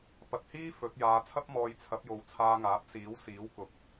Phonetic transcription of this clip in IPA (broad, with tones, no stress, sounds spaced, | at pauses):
p ɐ˨ t̚ h iː˥ f ɵ˨˥ t̚ j aː˨˧ t͡sʰ ɐ˥ p̚ m ɔː˧ j t͡sʰ ɐ˨˥ p̚ j o˨ w t͡sʰ aː˧ ŋ aː˨˥ p̚ s iː˨˥ w s iː˨˥ w k ʊ˨˥ k̚